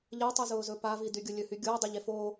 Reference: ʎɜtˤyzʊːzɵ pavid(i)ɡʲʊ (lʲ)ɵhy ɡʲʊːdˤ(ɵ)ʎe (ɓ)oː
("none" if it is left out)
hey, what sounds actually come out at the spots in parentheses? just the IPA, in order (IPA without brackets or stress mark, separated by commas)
y, lʲ, ɵ, f